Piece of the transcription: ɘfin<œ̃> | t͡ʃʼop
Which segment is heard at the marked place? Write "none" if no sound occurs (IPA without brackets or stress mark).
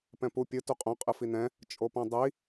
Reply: ɛ̃